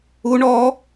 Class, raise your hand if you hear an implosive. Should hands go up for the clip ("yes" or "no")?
no